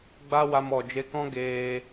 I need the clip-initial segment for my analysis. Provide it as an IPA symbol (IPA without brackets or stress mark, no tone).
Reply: ɡ͡b